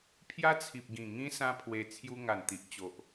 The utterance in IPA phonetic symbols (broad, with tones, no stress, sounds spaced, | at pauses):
pʰ j a˦ t͡sʰ i˨ p̚ ɡ ĩ˨˩ ŋ ĩ˦ s ã˦ pʰ w e˧ t͡sʰ j u˧ ŋ a˨˩ n t̪ i˨ ʔ t͡ɕ o˨ ʔ